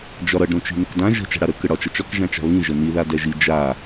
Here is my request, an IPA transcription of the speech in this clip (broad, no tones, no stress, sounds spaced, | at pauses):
d͡ʒ ɒ ɾ ʌ ɖ ɾ õ t͡ʃ i̤ n ə k d ã ʒ ə̤ t͡ʃ a̤ ɽ a ɾ ə k ə ɽ ɒ t͡ʃ ʌ t͡ʃ ɒ k ʒ ã t͡ʃ a̤ β ĩ ʒ ə n i ð a d ɛ ʒ i d͡ʒ a